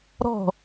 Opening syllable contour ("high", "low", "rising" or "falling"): falling